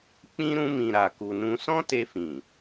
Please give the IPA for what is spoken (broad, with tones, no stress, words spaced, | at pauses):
k͡pĩ˧ ɾũ˧mĩ˨ ɾa˨ku˨nũ˧ sɔ̃˦te˧fĩ˨